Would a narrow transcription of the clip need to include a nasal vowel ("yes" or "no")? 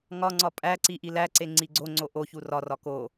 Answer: no